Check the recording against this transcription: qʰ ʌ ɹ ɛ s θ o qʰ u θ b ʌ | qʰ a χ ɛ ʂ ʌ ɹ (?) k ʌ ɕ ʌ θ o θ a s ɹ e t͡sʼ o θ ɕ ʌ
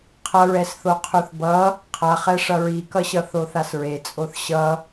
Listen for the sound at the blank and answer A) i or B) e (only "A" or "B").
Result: A